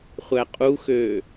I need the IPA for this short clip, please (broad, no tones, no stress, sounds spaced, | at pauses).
χʷ æ qʼ u x øː